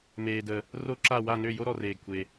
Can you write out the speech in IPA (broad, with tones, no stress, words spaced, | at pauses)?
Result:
meː˨də˨ | ro˥ǁa˥˧ wa˥˧nø˥˧ jo˥ɾɔ˨reː˨ɡkʷʰe˨